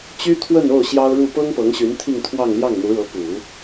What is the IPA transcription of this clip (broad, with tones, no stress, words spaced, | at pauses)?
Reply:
t͡ɕy˥t̪ʰwə˥˧no˥˩ʊ̯ ɕjɑ˥ʊ̯ɻu˥˩ pɤ˥ŋpɤ˧˥ŋɕy˧˥n t̪ʰi˥˧ŋt̪ʰwɑ˥˧ŋ ljɑ˥˩ŋn̪u˧˥ɻɤ˧˥ pu˨˩˦